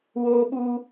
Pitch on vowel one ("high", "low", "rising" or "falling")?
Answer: high